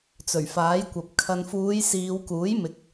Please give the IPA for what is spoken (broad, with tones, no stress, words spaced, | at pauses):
t͡sɵ˨˩ɥfaː˨˥jkʷɐ˨p̚ kʰɐ˨nfuː˨˧j siː˨˧wkuː˨˥jmɪ˨k̚